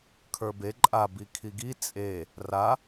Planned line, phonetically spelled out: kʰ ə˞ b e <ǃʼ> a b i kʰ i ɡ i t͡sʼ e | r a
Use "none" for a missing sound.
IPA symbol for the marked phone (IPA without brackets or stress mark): ǃʼ